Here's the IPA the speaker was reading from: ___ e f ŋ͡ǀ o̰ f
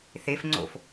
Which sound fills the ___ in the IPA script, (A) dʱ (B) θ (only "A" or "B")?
B